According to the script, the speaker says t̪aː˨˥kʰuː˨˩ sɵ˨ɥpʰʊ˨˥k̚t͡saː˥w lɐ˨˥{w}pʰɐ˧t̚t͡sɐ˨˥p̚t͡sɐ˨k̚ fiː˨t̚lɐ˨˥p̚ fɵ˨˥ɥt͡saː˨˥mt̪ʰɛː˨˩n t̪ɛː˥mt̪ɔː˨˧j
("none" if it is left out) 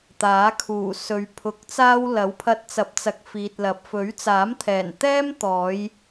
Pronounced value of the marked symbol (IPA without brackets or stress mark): w